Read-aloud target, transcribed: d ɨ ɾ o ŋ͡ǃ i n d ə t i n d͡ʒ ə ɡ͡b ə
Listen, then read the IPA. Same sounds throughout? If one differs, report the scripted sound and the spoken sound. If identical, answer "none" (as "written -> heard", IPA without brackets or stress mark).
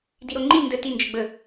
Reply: ɨ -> i